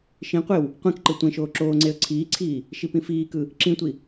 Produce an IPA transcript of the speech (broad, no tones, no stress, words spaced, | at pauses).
ʃĩqʷew | qʷẽkǃɯ tʷẽʃoː ǁoːŋ͡ǀeə̯ ǀʰiːǀʰiː | ʃipĩfiːkɯ | ǁĩtʷi